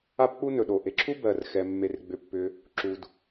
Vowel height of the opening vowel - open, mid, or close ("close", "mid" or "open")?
open